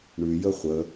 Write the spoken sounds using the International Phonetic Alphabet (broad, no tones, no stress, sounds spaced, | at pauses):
ɳ ʉ j ə χʷ ə